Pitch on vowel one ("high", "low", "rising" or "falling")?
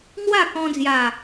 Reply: falling